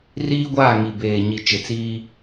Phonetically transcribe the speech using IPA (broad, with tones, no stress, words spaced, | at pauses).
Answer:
riː˦ɡʷaː˦˨ŋi˨beː˨ ɲi˨t͡ʃɪ˨t͡siː˦